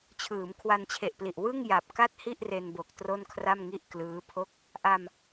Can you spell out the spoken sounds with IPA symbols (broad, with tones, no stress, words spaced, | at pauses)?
t͡ɕʰɯː˩˦mkʰwa˧nt͡ɕʰe˨˩ʔpli˨˩ʔ wɯ˥˩ŋja˨˩p̚ka˥˩t̚ hi˥˩ʔre˧nbo˨˩k̚ tro˥˩nkʰra˥˩m ŋi˥˩ʔklɯː˦˥pʰo˥˩k̚ | ʔa˧m